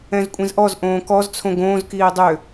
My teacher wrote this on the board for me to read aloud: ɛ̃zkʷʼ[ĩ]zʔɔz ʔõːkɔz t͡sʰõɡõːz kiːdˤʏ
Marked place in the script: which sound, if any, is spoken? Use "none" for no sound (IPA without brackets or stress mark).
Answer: ĩ